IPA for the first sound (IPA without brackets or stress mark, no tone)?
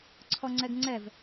ǀʰ